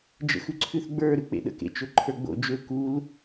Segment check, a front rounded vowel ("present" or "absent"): present